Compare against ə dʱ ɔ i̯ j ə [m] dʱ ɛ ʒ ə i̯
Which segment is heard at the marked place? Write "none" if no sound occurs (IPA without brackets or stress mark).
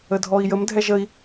m